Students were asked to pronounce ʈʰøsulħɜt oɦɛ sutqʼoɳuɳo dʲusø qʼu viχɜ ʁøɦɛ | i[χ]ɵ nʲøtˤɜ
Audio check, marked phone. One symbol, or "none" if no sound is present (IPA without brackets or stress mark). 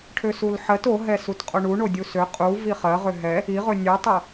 ʁ